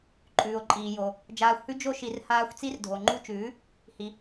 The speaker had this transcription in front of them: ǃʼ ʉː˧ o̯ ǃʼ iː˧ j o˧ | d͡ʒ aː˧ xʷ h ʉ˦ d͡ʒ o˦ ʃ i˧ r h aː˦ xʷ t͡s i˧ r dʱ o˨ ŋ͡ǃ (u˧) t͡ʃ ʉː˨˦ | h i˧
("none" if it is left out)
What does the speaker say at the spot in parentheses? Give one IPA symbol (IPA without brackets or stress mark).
u˧